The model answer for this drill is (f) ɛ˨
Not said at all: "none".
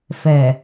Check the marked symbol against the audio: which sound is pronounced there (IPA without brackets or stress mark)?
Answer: f